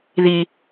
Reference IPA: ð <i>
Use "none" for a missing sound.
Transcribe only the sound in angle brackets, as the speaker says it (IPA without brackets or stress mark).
i